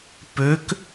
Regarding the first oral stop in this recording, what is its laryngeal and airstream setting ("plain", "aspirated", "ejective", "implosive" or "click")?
plain